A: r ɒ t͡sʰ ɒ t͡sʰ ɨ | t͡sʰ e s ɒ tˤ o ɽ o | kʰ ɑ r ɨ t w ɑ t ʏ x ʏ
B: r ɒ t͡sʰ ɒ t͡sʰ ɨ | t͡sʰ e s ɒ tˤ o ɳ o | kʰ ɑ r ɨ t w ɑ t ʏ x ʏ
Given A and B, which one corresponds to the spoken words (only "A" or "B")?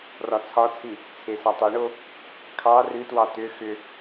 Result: B